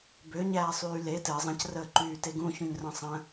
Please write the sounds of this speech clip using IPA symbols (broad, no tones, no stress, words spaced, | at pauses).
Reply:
bøɲæːsˤyː le tɘ zˤə̃crəː ǃyːteɡũçũɲ rə̃sˤə̃